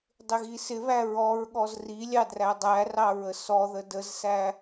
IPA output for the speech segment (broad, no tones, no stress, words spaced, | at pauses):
dˤɪɣisɪβæ ɹɔɹɠɔz rilʲɑ drædˤærɑ ɹəsɔðə dəzsæ